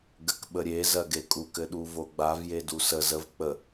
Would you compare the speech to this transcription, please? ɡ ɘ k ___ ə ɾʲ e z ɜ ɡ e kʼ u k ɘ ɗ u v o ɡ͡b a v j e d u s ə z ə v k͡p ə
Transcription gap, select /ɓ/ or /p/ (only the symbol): ɓ